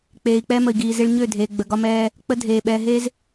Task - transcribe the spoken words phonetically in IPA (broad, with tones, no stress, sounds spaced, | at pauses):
k͡p eː˨ i̯ k͡p ɛ˦ m ə˨ i̯ ɡ iː˨ z e˦ ɭ ɲ ø˦˨ dʱ eː˨ ɡ͡b ə˨ ɡ ɒ˦ m ɛː˦ | k͡p ə˦ dʱ eː˨ ɓ ɛː˨ ɦ e˦ z